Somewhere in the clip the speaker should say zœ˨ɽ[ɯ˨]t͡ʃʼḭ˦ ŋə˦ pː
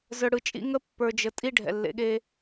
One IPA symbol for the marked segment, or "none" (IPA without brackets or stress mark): ɯ˨